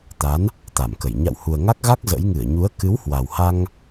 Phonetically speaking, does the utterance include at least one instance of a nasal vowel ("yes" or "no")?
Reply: no